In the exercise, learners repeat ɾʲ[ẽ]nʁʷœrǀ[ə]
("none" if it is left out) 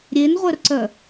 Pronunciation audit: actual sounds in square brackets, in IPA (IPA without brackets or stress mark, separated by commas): e, œ